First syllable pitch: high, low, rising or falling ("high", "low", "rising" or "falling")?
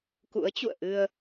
rising